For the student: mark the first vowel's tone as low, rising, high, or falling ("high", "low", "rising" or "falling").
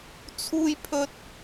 high